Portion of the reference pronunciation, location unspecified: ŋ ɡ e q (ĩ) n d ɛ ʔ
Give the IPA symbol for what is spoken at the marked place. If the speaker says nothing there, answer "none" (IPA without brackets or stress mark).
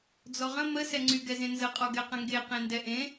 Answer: ẽ